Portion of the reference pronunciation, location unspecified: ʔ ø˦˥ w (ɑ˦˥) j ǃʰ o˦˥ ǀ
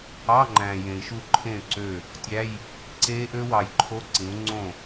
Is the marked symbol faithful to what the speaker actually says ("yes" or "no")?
no